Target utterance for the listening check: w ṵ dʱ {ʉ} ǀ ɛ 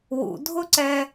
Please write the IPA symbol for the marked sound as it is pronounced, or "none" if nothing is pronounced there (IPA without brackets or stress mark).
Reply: ʊ